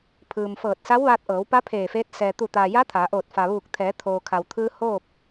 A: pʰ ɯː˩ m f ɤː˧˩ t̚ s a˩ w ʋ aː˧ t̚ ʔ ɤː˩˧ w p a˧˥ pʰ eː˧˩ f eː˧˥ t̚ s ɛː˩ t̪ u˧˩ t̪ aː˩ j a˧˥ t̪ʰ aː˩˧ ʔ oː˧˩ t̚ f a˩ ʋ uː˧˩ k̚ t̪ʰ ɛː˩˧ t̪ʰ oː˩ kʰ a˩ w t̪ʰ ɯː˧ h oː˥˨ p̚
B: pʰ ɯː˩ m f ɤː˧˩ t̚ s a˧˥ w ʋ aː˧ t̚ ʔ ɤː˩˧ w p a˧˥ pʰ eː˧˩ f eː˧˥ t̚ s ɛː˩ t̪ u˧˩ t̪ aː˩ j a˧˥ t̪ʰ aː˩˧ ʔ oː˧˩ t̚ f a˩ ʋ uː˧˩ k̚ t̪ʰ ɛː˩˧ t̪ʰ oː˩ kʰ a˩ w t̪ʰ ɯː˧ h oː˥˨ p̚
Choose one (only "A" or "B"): B